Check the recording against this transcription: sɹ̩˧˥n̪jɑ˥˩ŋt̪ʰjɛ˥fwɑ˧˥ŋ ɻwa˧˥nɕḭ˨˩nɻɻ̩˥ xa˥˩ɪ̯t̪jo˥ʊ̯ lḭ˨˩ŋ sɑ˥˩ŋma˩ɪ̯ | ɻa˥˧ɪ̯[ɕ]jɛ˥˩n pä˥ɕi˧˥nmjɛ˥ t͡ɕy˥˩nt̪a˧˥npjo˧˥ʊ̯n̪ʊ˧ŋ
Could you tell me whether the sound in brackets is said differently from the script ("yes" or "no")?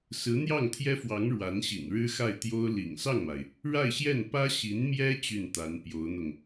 no